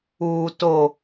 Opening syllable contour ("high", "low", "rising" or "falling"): low